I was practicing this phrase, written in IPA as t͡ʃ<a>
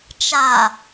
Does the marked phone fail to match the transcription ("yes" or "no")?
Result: no